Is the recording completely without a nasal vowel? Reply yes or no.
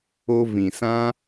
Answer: no